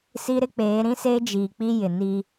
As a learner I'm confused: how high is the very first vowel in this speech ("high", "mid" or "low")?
high